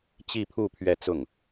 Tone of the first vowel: falling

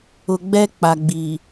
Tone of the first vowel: low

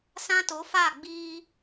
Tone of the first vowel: high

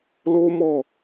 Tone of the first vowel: high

